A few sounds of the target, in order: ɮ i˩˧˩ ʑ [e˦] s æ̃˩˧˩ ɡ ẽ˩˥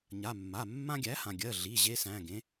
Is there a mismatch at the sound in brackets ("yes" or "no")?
no